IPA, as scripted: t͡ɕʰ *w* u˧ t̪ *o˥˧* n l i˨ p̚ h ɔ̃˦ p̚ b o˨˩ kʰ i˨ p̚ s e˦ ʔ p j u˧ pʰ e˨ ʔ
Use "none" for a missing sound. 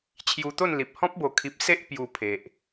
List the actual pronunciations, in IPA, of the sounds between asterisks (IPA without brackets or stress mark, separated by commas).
j, o˥˧